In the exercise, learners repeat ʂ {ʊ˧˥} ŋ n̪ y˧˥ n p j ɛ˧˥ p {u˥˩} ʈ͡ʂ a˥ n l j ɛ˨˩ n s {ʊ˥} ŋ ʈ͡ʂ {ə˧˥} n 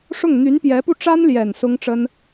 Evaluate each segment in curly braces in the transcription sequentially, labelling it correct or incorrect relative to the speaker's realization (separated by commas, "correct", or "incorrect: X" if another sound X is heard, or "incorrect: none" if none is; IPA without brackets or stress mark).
incorrect: ʊ˥˩, correct, correct, incorrect: ə˥